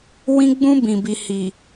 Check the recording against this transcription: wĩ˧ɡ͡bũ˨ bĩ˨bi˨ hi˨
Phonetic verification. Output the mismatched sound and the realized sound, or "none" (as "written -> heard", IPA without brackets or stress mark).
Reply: ũ˨ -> ũ˧